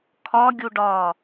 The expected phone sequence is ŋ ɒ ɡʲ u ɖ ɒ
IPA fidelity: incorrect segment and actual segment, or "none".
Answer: ŋ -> kʰ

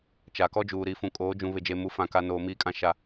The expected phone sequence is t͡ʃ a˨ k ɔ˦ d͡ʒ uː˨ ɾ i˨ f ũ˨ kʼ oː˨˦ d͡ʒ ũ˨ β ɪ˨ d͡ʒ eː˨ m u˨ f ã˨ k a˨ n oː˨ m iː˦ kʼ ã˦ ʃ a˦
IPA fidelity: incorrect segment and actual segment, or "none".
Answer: none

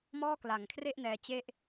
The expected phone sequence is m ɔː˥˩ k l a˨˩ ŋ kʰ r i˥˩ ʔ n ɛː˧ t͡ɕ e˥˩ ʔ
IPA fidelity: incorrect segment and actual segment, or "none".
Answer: i˥˩ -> e˥˩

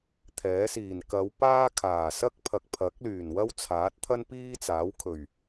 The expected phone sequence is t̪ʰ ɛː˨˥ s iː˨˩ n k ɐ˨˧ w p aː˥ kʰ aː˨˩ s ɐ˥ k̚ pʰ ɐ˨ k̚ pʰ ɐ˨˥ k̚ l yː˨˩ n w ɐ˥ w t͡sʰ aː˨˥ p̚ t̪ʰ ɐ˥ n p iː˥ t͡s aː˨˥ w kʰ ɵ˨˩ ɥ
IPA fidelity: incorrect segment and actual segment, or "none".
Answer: p̚ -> t̚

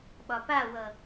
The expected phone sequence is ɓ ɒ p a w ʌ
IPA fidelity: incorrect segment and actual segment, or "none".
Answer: none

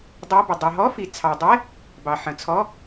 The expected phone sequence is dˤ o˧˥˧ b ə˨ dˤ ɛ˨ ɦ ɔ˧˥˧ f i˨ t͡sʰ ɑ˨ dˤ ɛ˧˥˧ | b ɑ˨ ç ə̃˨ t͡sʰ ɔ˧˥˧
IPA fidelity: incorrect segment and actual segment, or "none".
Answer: ç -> ħ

